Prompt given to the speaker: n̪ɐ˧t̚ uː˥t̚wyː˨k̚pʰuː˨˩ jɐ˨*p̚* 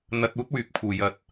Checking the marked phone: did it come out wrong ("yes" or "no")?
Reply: yes